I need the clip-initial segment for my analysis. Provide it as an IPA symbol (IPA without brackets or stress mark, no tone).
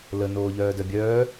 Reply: l